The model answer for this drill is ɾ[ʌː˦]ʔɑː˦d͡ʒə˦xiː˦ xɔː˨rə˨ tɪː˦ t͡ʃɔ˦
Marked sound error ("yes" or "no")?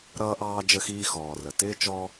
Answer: no